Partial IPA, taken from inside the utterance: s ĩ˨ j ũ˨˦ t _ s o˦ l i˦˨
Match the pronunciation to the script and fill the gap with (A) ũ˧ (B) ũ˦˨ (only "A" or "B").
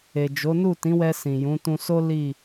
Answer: A